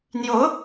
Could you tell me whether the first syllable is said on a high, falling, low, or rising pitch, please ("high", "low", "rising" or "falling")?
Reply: rising